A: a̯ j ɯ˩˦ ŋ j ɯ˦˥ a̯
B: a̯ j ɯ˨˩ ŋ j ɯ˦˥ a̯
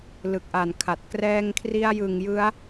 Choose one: B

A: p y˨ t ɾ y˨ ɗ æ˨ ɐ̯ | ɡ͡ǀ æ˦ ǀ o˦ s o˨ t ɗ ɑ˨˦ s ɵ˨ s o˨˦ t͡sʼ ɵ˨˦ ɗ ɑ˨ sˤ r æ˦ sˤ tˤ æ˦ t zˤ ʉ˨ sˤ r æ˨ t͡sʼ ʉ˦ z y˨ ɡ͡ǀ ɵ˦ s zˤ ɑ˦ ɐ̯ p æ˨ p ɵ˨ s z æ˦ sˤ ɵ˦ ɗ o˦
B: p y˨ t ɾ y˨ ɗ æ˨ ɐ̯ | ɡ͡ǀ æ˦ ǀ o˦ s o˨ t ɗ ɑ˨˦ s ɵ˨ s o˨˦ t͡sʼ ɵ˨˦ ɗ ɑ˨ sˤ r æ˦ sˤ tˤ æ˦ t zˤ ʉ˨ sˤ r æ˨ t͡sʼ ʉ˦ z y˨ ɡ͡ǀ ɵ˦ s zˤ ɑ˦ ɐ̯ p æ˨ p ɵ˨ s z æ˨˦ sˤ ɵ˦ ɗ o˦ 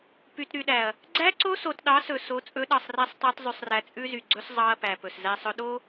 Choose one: A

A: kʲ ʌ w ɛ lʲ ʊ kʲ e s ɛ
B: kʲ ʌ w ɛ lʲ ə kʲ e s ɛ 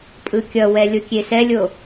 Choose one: A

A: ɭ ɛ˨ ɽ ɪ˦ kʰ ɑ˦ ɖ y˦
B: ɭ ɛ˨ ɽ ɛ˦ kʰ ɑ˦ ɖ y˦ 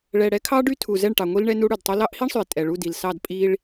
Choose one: B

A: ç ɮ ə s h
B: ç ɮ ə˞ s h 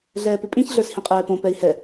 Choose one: B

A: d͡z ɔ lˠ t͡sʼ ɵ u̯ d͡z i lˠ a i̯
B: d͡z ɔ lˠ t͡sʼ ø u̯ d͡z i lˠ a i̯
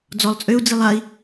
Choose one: B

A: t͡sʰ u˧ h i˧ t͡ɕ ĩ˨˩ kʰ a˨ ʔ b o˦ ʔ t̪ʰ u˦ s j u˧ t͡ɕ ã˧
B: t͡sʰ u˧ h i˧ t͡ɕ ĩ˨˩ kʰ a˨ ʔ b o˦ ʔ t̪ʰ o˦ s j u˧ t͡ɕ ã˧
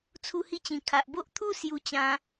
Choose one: A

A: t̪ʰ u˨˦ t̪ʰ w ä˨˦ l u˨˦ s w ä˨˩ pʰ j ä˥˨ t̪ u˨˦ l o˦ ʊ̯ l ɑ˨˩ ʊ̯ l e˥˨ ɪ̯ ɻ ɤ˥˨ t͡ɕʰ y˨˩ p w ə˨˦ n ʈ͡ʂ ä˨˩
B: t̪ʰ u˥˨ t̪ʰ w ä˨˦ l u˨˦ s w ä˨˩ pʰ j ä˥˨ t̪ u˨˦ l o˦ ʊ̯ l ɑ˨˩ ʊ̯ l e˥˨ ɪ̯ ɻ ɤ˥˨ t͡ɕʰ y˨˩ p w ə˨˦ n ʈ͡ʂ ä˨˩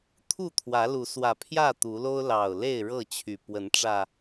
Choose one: B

